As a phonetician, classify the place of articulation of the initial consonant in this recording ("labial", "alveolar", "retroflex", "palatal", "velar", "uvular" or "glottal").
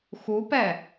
velar